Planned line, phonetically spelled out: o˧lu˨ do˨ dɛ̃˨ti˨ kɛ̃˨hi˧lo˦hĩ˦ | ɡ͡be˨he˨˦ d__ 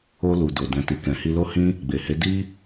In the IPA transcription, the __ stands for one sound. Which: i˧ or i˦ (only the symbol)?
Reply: i˦